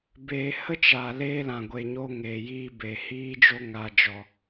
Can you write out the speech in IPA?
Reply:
beː˨hə˦t͡ʃa˨ leː˦lã˨ ɡʷe˨ɲo˧ ŋeː˨jiː˧ be˨ hiː˦ d͡ʒo˦ŋa˧d͡ʒɔ˧

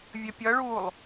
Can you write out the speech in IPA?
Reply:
vʲəpʲʌɭuːlˠ

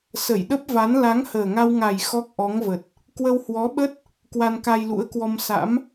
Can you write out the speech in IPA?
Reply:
sə˧˩jɗə˦˥p̚va˨˦n la˨˦ŋhəː˨˩ŋa˧wŋa˨˩j xɔ˦˥k̚ʔɔ˨˦ŋvə˨˩t̚ | kwə˧whwɔ˨˦ɓə˦˥t̚ | kwa˧nka˧jlṵ˧˥ə̯kwɔ˧m sa̰˧˥m

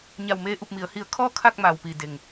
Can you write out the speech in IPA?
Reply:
ɲa˧˩wmeː˧ʔu˧˩p̚mi˩˧ə̯ hi˧˩ə̯kʰɔː˥˨ kʰa˥˨k̚maː˩wpiː˩ de˩ŋ

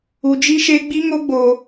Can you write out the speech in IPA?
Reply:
u˧d͡ʒi˦ ʃe˦ ɡ͡bi˦ŋo˦ɡ͡boː˧

